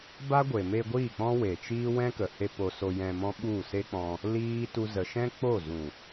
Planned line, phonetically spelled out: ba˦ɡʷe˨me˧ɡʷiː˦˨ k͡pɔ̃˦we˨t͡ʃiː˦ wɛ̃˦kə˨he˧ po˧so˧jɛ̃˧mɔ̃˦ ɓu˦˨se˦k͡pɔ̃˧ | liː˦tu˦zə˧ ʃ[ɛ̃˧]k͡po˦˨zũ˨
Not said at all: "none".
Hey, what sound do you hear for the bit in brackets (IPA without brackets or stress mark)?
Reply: ɛ̃˦